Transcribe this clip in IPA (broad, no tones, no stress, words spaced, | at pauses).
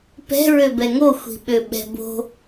pɛ̤ɹøbɛ ŋo xʷi̤ɓøɓɛ̤bo̤